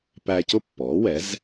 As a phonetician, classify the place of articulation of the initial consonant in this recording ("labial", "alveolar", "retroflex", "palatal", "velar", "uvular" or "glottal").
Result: labial